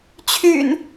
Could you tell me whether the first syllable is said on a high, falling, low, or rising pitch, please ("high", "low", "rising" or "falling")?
low